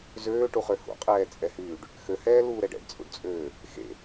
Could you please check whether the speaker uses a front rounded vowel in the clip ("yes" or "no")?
yes